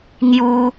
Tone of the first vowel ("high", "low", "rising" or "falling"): high